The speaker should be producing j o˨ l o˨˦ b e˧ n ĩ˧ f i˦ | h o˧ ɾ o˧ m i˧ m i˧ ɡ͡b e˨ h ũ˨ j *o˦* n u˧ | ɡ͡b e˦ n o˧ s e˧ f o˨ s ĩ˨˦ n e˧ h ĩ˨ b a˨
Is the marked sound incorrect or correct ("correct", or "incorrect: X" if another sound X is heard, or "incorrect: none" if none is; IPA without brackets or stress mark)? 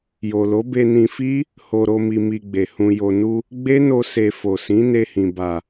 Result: incorrect: o˨